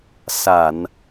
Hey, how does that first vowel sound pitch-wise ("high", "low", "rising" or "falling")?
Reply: low